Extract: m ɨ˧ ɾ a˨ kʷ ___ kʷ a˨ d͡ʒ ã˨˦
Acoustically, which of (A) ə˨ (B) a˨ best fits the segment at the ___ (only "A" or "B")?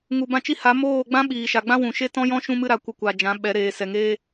A